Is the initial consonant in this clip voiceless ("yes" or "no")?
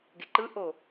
no